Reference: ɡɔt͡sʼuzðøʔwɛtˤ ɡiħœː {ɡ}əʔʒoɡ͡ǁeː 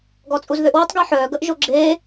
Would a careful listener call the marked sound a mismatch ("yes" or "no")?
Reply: no